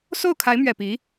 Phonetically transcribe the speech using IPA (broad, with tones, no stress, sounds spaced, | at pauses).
s o˥˩ ʊ̯ kʰ a˧˥ ɪ̯ m ɥ ɛ˨˩ p i˧˥